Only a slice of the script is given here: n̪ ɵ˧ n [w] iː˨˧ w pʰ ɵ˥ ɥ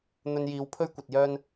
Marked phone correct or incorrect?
incorrect